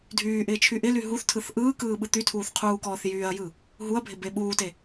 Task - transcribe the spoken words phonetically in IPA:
dʱyːʔɪː t͡ʃʰyʔɪly ɦuθtʰɯθ ʔɯː kɯːɓɯt̪ytʰuːθ qʰuːkɔːθjyːɐ̯jɯ | ɦuɐ̯bʱɪ beɓuːte

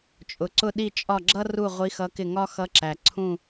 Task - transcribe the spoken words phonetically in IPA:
t͡ʃʼʊ˩ǀʊ˦˨ ɗi˦˨t͡ʃʼɒ˦˨ɡ͡ǁʌ˥ ru˦˨ ʁʷi˧˥xʌ˧˥kɪ˦˨ ŋɒ˥xʌ˧˥ǁæ˩ ǀʰũ˦˨

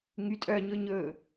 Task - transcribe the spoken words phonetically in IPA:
ŋytʼœɲɵ ɲɵ

